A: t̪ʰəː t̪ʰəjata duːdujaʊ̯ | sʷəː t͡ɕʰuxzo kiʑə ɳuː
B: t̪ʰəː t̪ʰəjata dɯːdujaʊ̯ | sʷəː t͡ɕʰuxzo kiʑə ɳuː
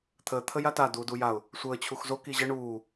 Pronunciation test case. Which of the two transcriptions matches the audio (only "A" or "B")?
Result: A